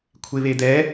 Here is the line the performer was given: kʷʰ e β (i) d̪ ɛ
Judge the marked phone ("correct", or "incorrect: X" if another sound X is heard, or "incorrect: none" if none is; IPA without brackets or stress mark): incorrect: e